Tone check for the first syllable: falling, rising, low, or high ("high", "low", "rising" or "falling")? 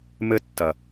high